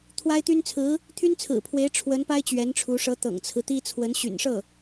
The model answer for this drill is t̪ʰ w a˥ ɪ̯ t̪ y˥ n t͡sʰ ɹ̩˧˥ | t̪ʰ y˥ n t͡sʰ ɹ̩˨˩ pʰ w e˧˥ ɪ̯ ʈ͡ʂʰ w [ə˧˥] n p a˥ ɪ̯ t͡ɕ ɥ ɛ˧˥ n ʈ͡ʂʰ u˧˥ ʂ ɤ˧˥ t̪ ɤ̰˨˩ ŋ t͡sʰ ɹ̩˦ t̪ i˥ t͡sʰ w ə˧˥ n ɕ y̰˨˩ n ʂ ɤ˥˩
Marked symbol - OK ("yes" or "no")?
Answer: yes